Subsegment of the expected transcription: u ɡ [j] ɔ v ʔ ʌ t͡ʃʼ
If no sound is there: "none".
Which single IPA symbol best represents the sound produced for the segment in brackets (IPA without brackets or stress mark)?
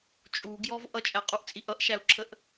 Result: j